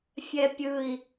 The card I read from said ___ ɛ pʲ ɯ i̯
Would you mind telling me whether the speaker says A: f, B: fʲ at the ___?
B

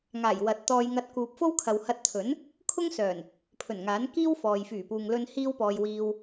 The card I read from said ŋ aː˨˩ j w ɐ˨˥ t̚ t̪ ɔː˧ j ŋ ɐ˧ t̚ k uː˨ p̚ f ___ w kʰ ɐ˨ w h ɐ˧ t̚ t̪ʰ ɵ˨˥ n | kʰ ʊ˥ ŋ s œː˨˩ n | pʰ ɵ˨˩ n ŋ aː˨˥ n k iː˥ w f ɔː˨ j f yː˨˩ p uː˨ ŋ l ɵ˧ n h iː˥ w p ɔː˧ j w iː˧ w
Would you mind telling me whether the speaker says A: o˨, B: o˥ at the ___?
B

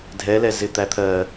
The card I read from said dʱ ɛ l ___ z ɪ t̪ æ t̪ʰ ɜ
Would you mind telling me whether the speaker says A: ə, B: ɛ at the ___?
B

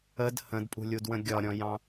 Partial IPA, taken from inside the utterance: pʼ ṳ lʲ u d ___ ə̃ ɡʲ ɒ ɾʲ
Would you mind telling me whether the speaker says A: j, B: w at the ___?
B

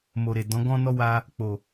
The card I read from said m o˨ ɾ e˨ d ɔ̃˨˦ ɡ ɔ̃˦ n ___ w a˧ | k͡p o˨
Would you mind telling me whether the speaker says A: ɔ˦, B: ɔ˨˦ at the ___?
A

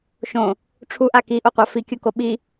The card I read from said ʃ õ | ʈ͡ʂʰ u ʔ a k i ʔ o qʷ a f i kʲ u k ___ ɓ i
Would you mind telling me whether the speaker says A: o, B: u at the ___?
A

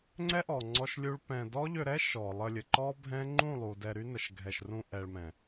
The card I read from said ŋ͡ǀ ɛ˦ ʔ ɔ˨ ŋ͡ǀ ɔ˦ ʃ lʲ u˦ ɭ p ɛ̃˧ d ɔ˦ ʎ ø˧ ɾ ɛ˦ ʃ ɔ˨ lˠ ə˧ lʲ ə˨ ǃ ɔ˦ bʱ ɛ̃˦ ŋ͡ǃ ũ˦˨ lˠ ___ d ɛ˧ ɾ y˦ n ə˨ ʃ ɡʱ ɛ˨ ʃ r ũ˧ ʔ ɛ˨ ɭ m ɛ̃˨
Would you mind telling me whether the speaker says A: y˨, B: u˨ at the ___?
B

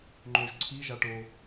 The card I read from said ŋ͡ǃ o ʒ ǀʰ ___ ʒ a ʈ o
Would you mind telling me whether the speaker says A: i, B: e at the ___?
A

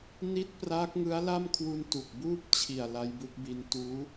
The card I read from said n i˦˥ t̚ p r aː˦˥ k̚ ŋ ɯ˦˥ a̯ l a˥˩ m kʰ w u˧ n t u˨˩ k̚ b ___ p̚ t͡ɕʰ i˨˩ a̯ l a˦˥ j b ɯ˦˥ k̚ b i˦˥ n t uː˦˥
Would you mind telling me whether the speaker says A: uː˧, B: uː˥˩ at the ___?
B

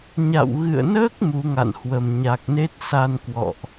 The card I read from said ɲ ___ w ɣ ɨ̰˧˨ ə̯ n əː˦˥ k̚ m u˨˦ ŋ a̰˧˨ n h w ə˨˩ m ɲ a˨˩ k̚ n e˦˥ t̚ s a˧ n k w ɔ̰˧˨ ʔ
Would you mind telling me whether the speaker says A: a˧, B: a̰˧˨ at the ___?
B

